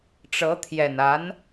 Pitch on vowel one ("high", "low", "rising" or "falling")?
rising